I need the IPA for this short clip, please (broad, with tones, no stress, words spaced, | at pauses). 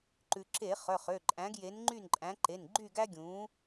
ǃʉ˩ǁe˧˩˧ χœ˩˧˩χø˩˧˩ǃʼæ̃˨˥ɡ je˨˥nŋ͡ǃy˥˨nǃʼæ̃˨˥ ǃe˩˧˩nɡ͡ǃy˥˨ɡæ˥ɡʲũ˨˥